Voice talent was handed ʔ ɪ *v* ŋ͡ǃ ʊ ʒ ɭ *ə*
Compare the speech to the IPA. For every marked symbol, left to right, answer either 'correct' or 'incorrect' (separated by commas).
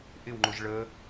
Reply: incorrect, correct